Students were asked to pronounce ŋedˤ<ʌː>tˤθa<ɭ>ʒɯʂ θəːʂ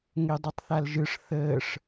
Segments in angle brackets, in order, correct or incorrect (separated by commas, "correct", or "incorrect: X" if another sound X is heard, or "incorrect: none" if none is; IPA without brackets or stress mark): incorrect: ʌ, incorrect: l